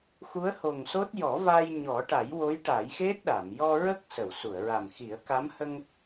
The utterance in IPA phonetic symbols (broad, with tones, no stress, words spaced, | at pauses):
xu˧˥ə̯ho˨˩ŋso˦˥t̚ jɔ˨˩˦va˧j ɲɔ˨˩˦ʈa˨˩˦jwo˧˥j ʈa˨˩˦jxe˦˥t̚ɗa˨˩˨m jɔ˧ɹə˦˥k̚ sə˨˩˨wsu˨˩˨ə̯ɹa˨˩mxi˨˩˦ə̯ ka˧˥mhə˧ŋ